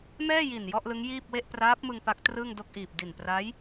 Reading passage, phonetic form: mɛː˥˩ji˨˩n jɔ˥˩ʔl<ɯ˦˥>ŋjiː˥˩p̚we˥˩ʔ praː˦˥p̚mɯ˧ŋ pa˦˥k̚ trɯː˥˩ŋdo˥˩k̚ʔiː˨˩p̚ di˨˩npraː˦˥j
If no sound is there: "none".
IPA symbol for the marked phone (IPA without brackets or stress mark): ɯ˦˥